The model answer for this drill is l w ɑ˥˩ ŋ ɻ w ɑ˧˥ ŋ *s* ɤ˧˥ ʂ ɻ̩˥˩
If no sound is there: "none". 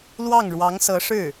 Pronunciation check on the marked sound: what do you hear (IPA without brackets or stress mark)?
s